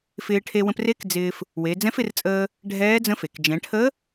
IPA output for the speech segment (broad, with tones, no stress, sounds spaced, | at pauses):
f ɪː˧ ʈʰ e˧ w ə̃˧ p r e˧˥ k d͡z ɪː˧ f | w e˩˧ d͡z ɛ̃˧˥ f ɪ˧ r t͡sʼ əː˧ | ɖʱ ɛː˧˥ d͡z ə̃˧˥ f e˩ k d͡ʒ ɛ̃˩˧ ʈʰ ə˧˥